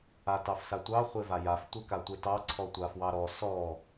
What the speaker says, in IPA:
a t ɑ f s a tʷ ɑ χʷ e v a j a f tʷ e k a tʷ e t ɑ ǀʰ ɔ tʷ a f w ɑ ɾ ɔ s ɔ

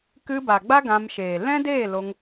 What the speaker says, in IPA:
k ɨ˧ b a˨ ɡ͡b a˦ ɡ ã˧ m ʃ eː˨ l ɛ̃˦ d eː˦˨ l o˧ ŋ

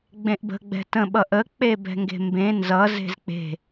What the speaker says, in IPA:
ɡ͡b ẽ ʔ b ə̤ ɡ͡b ɛ̤ t ə̃ ɓ ʌ ʔ ə k͡p e b ɛ̤ ŋ ɡ e̤ m b ẽ n z ʌ z e̤ z k͡p e̤

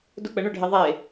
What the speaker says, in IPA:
d ʊ k͡p ə ɳ ɵ ɖʱ e ðˤ e

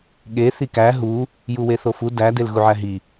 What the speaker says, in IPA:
ɠ e θ i k æ ɦ u | j u w e θ o f u d æ d e l ɣ u ʕ æ ɦ i

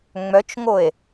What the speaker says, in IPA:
ŋ͡m œ t͡ʃ ŋ o e̯

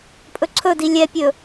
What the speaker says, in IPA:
pʼ ɵ ǀʰ ɵ d i lʲ ɛ pʲ ɵ

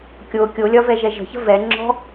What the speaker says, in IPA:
kʲ o kʲ o lʲ ɒ v ɛ ʒ ɛ ʒ ə̤ ç ə̤ v ɛ ŋ͡ǁ ɔ̤

